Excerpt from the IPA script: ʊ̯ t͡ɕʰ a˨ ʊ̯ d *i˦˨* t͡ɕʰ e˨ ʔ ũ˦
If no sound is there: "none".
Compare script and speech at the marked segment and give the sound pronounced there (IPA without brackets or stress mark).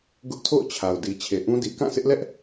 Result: i˨